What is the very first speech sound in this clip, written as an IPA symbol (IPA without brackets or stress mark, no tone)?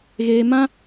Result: ɣ